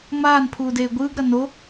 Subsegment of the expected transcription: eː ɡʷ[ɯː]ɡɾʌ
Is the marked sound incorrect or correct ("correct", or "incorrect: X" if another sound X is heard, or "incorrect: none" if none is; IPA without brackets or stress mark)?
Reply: correct